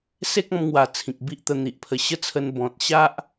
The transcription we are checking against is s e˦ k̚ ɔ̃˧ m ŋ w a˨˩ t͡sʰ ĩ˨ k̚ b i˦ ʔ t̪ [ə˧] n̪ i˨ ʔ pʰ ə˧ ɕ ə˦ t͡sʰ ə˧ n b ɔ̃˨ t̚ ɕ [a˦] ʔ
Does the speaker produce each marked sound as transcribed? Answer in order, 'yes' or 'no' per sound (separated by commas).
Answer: yes, yes